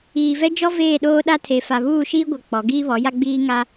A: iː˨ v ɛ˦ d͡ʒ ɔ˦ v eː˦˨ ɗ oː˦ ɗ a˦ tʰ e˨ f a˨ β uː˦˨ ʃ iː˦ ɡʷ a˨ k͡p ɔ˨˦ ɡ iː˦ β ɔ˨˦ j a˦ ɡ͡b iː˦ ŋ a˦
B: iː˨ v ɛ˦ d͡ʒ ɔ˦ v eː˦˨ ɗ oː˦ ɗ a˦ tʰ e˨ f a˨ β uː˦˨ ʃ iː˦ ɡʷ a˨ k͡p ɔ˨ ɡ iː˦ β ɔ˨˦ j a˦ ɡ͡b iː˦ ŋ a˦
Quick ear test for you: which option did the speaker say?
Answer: A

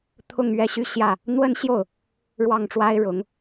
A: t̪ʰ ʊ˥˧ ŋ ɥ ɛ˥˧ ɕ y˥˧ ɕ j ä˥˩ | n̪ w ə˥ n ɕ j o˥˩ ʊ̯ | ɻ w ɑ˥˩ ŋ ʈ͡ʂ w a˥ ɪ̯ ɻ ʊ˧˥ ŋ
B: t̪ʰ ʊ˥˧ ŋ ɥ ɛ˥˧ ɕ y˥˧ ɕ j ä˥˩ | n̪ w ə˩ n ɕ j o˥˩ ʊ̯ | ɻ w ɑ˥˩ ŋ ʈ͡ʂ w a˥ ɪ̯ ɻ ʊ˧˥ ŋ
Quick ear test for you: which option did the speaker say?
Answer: A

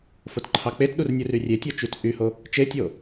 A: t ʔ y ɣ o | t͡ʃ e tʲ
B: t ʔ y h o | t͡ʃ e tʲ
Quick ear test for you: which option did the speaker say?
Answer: B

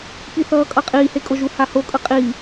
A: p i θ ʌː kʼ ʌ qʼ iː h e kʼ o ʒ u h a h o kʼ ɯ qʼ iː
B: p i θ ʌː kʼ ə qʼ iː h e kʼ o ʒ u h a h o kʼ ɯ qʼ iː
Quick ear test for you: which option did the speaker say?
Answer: A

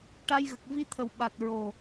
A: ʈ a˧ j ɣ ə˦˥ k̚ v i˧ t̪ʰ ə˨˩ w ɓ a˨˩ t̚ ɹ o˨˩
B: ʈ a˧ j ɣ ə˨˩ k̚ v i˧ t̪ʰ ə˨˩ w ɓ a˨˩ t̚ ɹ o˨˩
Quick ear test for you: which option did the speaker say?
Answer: B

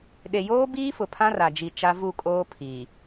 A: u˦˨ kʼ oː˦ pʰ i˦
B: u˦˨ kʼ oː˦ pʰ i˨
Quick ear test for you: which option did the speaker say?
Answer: B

